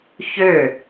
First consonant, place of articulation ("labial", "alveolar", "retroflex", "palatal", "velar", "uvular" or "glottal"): palatal